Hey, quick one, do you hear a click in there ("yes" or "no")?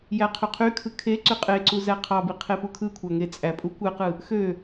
yes